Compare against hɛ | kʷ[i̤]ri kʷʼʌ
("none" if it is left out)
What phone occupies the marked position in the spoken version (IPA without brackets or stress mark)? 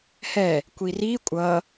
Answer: i